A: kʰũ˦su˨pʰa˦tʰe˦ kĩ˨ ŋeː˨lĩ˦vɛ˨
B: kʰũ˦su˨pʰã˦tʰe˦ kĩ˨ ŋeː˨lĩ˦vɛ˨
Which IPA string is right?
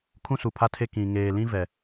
A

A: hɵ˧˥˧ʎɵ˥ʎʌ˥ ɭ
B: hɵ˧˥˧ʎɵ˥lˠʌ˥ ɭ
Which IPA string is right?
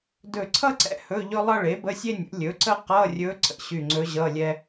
B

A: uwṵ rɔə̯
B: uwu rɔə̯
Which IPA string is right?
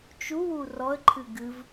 B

